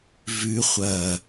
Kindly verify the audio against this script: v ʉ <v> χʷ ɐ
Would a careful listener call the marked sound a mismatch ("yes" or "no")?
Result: yes